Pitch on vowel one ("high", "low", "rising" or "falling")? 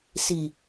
low